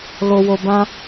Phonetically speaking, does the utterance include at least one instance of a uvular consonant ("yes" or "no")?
no